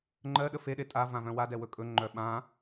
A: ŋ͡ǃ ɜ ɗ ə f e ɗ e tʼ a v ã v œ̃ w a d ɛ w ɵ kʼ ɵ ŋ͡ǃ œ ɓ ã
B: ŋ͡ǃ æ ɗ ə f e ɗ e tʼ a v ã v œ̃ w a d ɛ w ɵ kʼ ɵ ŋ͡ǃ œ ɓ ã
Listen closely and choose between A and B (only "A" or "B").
A